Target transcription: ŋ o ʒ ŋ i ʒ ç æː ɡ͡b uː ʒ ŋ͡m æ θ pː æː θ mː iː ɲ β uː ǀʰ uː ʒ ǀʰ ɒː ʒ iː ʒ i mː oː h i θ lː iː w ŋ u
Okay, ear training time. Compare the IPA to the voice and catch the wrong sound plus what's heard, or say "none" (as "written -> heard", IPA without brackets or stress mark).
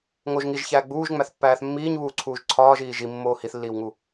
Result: none